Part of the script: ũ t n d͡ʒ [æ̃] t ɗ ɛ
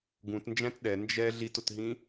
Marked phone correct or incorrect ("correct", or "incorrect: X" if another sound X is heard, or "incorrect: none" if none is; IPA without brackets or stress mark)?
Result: correct